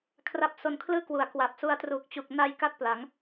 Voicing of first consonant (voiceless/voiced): voiceless